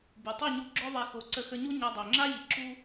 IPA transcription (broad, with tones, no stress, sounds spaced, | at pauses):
b u˩ tˤ u˥˩ ɲ u˧ ɡ͡ǁ œ˥ ðˤ ɛ˧ x o˩˥ ǀ ə˧ x ə˧ ɲ u˥ ɲ a˧ dˤ ø˩ ŋ͡ǁ a˥ j i˩˥ ǁ u˥